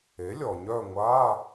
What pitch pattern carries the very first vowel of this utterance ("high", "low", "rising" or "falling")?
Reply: rising